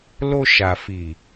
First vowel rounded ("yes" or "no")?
yes